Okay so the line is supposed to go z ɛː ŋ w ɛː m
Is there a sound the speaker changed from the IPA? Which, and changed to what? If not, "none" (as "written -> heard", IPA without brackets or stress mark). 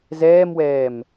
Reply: ŋ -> m